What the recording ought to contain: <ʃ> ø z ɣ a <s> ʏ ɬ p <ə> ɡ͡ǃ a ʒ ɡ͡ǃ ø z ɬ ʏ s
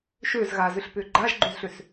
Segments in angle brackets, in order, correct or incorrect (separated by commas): correct, incorrect, incorrect